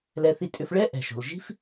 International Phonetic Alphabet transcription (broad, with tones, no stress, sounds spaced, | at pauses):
l ɛ˧ θ i˧ tʼ ʏ˧ f ɭ ɛ˥ ʔ ɛ̤˩ ʃ o̤˩ l ʒ i̤˥ f